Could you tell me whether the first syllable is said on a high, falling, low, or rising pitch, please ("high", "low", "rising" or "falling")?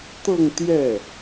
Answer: falling